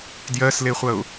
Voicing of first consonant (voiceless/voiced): voiced